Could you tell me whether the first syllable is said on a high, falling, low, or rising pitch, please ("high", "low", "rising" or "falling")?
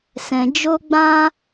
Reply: low